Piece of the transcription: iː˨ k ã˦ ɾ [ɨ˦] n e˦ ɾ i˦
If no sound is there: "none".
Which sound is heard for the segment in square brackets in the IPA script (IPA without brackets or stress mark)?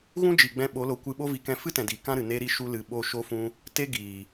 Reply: ɨ˨